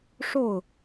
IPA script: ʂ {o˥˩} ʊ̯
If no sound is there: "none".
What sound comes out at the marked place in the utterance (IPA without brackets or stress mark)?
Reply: o˥˩